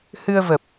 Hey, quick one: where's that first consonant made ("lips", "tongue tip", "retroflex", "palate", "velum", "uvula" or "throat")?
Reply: throat